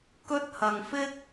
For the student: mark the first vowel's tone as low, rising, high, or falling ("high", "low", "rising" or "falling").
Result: high